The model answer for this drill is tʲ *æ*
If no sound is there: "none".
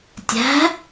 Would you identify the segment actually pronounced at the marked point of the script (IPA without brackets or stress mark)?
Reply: æ̤